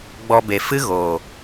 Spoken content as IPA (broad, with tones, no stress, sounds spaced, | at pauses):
ɡ͡b ɔ˧ b e˨ f ɨ˦ ɣ oː˨